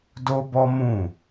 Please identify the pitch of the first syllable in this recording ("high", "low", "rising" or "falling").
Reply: high